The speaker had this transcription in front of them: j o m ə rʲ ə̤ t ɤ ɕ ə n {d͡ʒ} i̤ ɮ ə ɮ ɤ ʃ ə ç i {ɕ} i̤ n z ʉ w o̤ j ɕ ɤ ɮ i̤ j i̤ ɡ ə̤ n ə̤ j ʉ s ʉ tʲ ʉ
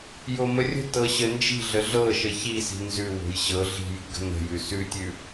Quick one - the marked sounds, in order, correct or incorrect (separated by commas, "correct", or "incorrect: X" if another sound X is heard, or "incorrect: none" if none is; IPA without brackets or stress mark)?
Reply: correct, incorrect: s